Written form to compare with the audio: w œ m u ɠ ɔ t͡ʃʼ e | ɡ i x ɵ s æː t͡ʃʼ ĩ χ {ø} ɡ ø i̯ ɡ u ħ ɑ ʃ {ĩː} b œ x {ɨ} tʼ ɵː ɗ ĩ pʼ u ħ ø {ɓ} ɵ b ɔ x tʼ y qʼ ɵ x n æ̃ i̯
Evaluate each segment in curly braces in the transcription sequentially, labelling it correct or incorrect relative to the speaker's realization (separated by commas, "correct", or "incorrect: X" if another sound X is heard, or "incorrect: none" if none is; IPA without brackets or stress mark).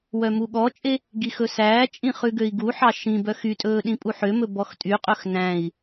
incorrect: ʉ, incorrect: ĩ, incorrect: y, incorrect: m